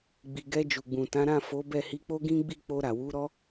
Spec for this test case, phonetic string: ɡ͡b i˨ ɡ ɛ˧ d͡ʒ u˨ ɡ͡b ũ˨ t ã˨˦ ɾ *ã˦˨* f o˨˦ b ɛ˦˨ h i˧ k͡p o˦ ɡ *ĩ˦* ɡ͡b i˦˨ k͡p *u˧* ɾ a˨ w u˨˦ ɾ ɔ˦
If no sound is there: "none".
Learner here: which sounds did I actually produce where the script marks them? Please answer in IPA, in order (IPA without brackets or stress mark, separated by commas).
ã˦˨, ĩ˦, o˧